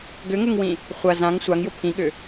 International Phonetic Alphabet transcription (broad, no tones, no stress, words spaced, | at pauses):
ɡʏŋʊŋwĩ | χʷɐ zãŋ sʷaŋjʊ pʰĩɠʏ